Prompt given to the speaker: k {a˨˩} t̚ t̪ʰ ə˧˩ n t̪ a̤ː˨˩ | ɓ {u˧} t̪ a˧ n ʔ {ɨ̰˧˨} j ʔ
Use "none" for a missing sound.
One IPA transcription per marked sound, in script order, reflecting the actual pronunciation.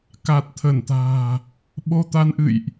a˨˩, o˧, ɨ̰˧˨

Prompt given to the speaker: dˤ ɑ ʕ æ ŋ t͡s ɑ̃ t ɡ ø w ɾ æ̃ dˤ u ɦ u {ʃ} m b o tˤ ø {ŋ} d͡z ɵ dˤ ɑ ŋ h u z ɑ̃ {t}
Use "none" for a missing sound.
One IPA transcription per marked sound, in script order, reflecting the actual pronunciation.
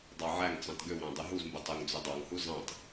z, ŋ, t

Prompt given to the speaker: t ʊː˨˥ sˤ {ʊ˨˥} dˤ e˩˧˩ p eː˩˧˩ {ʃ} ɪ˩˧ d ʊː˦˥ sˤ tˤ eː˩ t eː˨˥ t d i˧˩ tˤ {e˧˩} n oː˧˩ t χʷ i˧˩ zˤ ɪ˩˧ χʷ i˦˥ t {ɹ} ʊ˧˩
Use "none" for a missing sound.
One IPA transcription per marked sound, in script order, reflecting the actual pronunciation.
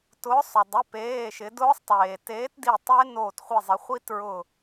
ʊ˩, ʃ, e˦˥, ɹ

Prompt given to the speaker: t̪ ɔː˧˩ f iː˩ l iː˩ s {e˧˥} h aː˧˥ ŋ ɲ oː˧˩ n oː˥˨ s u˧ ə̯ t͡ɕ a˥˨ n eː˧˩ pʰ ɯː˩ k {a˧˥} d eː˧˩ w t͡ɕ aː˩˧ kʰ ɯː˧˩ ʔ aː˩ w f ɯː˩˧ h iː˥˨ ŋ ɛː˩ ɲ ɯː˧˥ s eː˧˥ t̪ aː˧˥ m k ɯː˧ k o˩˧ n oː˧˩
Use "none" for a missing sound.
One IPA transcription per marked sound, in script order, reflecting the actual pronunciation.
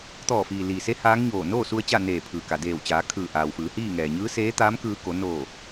e˧˥, a˩

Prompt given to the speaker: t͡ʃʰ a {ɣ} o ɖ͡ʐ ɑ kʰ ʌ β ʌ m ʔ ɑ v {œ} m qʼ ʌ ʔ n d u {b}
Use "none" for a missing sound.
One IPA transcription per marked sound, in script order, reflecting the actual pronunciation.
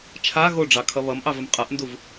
ɣ, ə, v

